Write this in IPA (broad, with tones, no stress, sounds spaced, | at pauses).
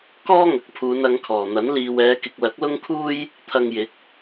k ɔː˥ ŋ ɐ˨˥ k̚ pʰ uː˨˧ n ɐ˨˧ ŋ kʰ ɔː˨˩ n̪ ɐ˨˥ n l iː˨ w ɛː˨˧ k ɪ˨ k̚ l ɐ˨˥ k̚ l ʊ˥ ŋ kʰ uː˥ j | t̪ʰ ɐ˧ ŋ j ɪ˨˥ k̚